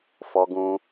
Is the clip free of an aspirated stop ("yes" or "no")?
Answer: yes